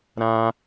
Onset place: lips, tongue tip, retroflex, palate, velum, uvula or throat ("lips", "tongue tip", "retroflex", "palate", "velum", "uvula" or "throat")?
tongue tip